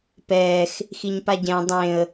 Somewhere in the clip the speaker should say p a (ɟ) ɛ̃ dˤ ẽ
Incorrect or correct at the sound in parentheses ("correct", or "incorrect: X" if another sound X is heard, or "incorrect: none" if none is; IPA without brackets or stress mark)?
correct